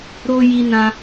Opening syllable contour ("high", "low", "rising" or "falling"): high